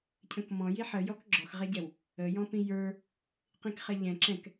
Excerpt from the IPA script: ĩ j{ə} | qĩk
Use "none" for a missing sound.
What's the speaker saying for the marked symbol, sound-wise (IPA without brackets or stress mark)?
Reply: ə˞